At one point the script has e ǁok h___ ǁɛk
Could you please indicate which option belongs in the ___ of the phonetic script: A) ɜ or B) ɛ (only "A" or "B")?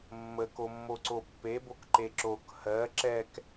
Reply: A